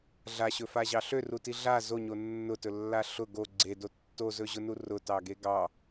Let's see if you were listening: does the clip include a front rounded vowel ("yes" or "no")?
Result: yes